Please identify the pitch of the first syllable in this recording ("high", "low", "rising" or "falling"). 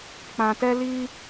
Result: low